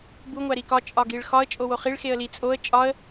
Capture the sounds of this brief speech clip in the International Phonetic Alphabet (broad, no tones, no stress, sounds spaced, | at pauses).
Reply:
b u ŋʷ æ ɾ i k ɒ t͡ʃʼ ɒ ɡ i ɭ x ɒ ə̯ t͡ʃʼ o w o χ i ɭ x e ə̯ l i t͡sʼ o ə̯ t͡ʃʼ ɒ ə̯